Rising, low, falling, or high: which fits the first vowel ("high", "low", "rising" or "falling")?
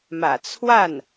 low